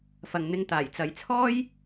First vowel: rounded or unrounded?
unrounded